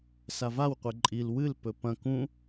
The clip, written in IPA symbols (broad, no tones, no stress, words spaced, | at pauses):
savawqʷe ǃʼil wɨlpɵ pɐ̃k ũ